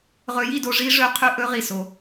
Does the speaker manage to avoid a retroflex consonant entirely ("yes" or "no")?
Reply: no